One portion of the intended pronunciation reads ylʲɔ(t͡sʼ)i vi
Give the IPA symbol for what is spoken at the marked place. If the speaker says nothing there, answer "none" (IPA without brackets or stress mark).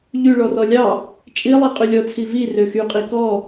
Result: t͡sʰ